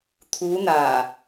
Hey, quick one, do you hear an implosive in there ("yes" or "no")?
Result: no